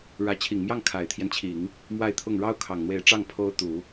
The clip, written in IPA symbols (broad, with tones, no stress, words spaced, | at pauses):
ɻä˧˥ t͡ɕʰi˨˩ŋmjɑ˥˩ŋ kʰa˨˩ɪ̯t̪ʰjɛ˦nt͡ɕʰi˨˩˦ŋ | mwa˥˧ɪ̯t̪ʰʊ˥˩ŋ ɻɑ˥ʊ̯kʰɑ˨˩ŋn̪we˧˥ɪ̯ʈ͡ʂɑ˥˩ŋ pʰo˥ʊ̯ t̪u˨˩˦